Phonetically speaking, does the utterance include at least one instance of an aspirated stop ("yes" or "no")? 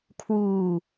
yes